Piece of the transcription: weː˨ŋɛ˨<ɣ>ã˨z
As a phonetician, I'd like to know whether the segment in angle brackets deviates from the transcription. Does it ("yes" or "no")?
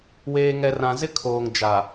yes